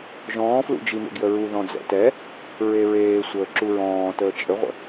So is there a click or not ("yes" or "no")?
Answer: yes